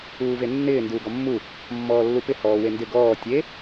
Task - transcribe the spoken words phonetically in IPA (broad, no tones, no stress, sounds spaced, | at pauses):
uː v e nː ɪː n d uː ɡ ɔ mː u | mː ɔː lː u p ɪ h ɔː w e n d ɪ ɡ ɔː tʲ e